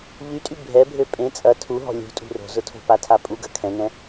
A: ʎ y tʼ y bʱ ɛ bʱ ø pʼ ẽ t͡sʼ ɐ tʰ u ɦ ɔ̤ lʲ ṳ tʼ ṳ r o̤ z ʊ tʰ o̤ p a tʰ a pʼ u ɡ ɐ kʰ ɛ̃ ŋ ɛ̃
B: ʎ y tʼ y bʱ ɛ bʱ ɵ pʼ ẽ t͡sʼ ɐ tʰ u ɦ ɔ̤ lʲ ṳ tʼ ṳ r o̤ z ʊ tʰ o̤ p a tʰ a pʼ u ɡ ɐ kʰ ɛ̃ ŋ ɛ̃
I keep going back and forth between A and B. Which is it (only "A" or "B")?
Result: A